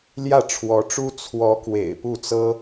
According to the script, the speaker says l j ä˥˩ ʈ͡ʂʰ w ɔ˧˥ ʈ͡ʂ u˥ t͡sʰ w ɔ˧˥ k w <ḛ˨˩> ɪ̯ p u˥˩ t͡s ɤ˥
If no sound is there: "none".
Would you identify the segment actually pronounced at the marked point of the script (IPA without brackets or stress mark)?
ḛ˨˩